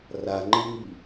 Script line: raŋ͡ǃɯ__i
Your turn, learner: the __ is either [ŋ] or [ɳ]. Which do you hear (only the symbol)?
ŋ